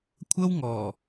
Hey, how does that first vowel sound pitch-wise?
high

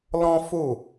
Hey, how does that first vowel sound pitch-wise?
high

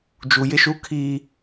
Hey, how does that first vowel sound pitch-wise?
low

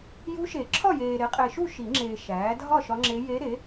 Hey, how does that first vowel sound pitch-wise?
rising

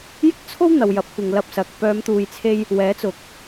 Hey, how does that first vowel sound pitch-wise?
high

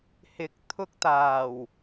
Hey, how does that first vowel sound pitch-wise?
rising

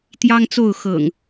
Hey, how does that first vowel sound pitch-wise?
high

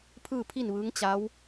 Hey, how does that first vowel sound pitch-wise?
falling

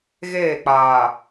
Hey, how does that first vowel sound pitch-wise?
falling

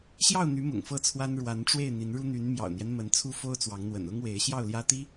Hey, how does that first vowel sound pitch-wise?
falling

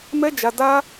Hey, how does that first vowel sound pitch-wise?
high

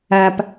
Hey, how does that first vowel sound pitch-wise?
low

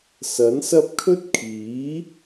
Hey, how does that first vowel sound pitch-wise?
rising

